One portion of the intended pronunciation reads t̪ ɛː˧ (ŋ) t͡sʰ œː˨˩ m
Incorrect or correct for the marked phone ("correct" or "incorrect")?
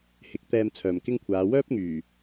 incorrect